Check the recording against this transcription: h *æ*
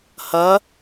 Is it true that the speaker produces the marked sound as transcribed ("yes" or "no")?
no